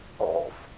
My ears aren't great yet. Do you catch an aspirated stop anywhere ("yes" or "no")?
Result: no